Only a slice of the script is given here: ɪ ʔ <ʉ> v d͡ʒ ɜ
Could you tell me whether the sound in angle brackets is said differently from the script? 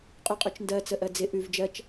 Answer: no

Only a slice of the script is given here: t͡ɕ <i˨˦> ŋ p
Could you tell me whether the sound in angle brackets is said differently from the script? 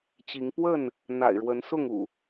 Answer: no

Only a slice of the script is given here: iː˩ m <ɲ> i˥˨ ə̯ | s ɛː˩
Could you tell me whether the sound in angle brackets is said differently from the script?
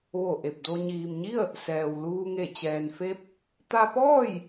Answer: no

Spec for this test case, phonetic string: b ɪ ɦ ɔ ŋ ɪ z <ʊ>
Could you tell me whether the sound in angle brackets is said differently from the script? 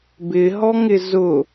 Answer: no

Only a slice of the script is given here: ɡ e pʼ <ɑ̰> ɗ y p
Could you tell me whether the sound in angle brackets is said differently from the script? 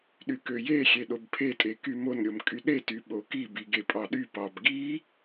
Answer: yes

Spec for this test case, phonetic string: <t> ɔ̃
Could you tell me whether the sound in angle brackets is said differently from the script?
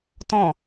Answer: no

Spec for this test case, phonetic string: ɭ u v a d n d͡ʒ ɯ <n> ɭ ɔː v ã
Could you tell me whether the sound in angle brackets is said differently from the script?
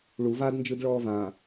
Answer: yes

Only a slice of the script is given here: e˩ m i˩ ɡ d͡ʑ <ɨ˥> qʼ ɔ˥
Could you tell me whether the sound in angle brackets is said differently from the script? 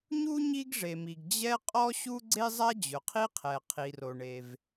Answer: yes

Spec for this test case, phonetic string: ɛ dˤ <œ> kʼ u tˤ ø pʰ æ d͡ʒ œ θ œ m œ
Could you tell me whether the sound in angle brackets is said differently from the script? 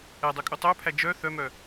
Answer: yes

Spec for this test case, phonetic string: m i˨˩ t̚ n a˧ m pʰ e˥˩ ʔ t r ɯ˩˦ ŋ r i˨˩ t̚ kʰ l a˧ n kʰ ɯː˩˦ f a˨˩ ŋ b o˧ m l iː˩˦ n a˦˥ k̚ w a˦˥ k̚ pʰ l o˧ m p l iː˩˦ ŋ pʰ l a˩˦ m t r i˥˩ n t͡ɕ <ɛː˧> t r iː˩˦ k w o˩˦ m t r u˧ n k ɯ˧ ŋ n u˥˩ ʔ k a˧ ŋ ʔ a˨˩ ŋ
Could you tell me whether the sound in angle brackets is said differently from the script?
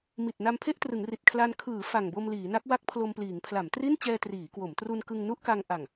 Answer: no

